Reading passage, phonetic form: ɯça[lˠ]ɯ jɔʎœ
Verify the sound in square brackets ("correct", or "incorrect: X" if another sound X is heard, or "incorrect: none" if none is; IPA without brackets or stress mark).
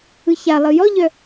correct